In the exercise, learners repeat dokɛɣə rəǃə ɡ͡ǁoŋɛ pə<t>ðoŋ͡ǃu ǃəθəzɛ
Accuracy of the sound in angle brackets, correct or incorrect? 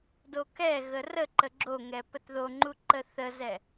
correct